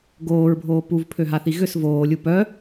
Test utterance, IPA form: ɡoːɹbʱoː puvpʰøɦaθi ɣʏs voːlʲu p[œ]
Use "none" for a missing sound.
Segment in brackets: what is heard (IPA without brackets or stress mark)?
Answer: œ